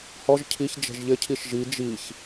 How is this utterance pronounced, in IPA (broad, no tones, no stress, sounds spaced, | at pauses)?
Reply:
h ɔ ʒ cʰ i ç d͡ʒ ɛ̤ ʒ ʎ ɪ cʰ i ʃ ʒ i d͡ʒ i ç